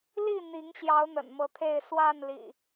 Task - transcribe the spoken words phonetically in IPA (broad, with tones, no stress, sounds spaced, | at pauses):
l i˥˨ n̪ i˨˦ ŋ ɕ j ɑ˨˦ ʊ̯ n̪ ə̰˨˩ n m ɤ˨˦ t̪ʰ e˥˨ ɪ̯ s w a˥˨ n l ḭ˨˩